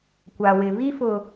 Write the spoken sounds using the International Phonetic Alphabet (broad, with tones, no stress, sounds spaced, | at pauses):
kʷ a˨ w ɪ˨ β i˦ f ʊ˨